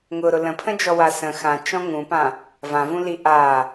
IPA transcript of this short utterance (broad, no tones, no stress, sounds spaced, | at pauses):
ŋ ʊ ɾ ʊ l ə̃ pʰ ə̃ d͡ʒ ɔ w a s ə̃ x ã t͡ʃ ɔ̃ ŋ ũ p ã | v ã v ũ l i ʔ a